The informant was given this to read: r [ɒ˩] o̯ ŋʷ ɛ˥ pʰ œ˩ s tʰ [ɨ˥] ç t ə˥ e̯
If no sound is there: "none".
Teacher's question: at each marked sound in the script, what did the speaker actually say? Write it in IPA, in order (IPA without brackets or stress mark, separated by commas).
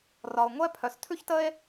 ɒ˩, ʉ˥